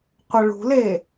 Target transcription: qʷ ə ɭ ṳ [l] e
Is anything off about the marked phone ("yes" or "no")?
no